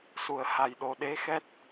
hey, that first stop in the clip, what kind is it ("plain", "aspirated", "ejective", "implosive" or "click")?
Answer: implosive